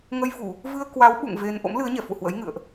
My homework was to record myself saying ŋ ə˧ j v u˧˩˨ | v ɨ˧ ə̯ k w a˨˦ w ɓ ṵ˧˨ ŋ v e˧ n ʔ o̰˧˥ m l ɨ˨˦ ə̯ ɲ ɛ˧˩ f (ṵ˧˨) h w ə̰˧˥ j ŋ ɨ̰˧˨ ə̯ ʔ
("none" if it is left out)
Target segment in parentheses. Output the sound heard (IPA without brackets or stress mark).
ṵ˧˨